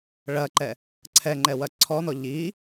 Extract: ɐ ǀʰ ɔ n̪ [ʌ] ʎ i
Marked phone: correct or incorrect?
incorrect